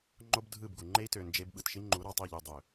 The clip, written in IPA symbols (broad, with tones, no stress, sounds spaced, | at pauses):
ŋ͡ǃ o˦ b dʱ ɯ˦˨ b ɡ u˨ ŋ͡ǃ e˦ i̯ t ø˨ n d͡ʒ e˦ b ɓ ɯ˨ t ʃ i˦ ŋ͡ǃ u˨˦ ɾ ɑ˨ tˤ i˦˨ ʎ y˨ dˤ ø˨